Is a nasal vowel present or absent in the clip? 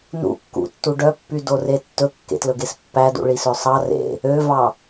absent